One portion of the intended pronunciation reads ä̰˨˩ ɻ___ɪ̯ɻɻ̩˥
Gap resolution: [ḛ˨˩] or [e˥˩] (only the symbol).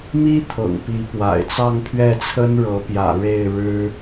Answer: e˥˩